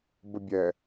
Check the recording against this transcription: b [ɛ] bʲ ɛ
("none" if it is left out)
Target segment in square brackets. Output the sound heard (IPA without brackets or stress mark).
ə